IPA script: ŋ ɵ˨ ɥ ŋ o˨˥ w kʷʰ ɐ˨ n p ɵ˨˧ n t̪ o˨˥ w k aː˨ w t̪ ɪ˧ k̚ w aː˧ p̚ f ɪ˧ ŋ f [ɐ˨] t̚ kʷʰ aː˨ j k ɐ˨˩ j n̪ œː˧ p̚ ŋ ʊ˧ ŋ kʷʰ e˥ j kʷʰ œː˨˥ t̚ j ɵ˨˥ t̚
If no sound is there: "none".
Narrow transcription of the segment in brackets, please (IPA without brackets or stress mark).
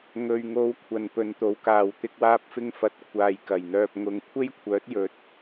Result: ɐ˨˥